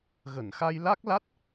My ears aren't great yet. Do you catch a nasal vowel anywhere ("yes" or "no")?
no